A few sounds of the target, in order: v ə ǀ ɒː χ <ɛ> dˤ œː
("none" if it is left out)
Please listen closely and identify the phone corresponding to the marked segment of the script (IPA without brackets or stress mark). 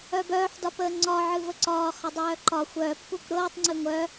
ə